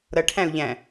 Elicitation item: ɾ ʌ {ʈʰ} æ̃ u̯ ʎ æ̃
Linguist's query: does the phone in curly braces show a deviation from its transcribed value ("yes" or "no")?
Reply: no